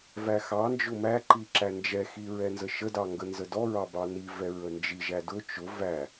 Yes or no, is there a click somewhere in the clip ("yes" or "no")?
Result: yes